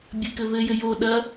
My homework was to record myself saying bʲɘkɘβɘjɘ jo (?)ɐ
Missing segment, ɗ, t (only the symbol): ɗ